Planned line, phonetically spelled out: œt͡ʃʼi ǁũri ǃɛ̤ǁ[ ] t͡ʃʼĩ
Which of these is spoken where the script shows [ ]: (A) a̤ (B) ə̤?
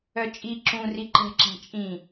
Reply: A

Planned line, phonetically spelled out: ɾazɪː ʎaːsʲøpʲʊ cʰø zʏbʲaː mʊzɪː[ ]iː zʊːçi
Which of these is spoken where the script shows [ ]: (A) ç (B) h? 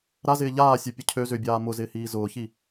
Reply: B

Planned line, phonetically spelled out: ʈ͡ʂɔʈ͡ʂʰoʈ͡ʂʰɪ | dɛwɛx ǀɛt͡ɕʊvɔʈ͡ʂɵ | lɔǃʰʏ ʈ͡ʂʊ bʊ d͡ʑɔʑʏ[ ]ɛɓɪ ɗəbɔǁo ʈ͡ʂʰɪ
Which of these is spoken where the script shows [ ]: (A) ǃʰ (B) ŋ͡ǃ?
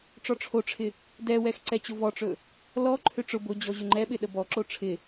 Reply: B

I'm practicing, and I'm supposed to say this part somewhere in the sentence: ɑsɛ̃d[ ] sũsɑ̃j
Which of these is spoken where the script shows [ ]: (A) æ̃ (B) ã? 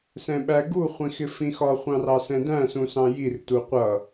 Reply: A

